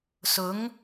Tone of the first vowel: rising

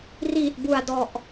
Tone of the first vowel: low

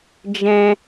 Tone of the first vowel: high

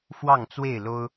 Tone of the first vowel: falling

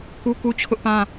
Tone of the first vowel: high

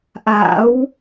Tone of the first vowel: rising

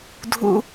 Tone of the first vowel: high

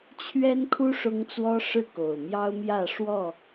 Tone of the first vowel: high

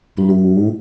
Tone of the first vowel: rising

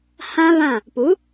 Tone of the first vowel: high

